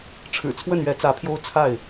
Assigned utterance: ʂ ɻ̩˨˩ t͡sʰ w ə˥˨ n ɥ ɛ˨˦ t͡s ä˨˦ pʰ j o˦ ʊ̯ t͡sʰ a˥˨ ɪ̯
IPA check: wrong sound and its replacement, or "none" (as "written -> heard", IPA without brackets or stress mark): ʂ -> ʈ͡ʂʰ